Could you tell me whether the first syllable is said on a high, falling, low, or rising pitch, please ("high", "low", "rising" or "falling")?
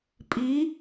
rising